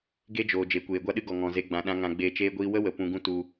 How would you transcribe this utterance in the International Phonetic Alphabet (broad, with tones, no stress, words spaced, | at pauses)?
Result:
ɡe˦d͡ʒoː˨ d͡ʒe˨˦kʷeː˨ɡʷa˦ɗɨ˦ ɡɔ˨ŋɔ̃˨ze˧ ɡ͡bã˨ɗã˧ ŋã˧ɡ͡beː˧t͡ʃeː˦ɡʷiː˦ wə˦wə˨ pũ˧ɡũ˦ tu˧